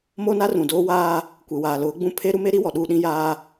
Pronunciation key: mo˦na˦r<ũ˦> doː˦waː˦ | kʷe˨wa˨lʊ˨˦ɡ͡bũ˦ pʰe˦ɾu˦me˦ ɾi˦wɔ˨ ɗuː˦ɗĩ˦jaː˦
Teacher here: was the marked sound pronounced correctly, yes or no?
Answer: no